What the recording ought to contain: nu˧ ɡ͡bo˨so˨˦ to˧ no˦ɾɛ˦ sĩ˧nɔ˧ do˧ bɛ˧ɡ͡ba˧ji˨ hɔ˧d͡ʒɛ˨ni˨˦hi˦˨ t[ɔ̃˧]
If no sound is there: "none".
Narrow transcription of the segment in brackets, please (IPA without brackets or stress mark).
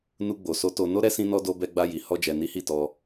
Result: ɔ˧